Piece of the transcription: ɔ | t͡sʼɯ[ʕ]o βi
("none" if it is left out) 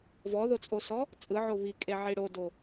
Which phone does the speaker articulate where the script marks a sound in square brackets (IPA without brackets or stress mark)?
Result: ʕ